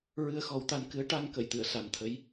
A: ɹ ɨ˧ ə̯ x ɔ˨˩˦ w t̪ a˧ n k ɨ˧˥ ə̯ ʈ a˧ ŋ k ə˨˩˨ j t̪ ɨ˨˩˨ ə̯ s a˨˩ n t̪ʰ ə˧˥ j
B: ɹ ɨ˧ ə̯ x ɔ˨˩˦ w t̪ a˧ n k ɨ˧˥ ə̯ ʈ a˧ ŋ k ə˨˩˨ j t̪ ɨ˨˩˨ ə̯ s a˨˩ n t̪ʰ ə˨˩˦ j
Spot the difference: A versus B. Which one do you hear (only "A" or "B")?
A